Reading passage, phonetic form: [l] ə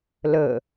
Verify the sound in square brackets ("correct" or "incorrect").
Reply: correct